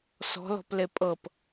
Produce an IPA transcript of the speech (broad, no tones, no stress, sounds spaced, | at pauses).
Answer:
s ɔ̤ l ɔ̤ p l e pʼ ɤ p